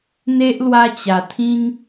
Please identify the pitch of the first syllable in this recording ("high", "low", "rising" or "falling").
high